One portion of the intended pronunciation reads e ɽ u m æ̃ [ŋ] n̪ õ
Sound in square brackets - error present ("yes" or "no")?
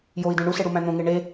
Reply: yes